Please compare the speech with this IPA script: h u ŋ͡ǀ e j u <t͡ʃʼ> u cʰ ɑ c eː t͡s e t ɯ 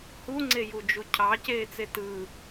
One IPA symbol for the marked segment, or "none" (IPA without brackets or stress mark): d͡ʒ